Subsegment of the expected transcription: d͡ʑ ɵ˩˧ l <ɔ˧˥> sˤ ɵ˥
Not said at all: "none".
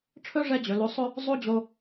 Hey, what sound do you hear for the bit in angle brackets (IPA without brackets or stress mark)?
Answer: o˧˥